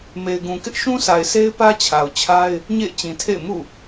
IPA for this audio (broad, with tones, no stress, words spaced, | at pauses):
me˨ɪ̯ɡũ˨kɪ˦ʔ ʃũ˦sa˨ɪ̯sʰe˦ɪ̯ pä˦t͡ɕʰa˨ʊ̯t͡ɕʰa˦ɪ̯ | ɲḛ˦˨ɪ̯ t͡ɕĩ˨tʰḛ˦˨ɪ̯ mṵ˦˨